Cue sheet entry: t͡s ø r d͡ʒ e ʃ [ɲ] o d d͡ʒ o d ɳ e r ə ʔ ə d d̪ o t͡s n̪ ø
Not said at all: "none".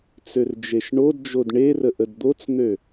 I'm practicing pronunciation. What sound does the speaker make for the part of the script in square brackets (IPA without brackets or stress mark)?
ɳ